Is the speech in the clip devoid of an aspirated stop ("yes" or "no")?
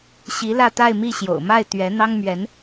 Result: yes